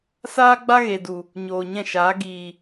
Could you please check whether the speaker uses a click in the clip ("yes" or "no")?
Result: no